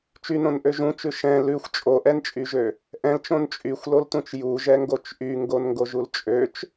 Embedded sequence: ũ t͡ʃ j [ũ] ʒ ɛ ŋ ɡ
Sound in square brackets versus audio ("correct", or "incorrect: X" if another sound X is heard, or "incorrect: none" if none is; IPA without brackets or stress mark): incorrect: u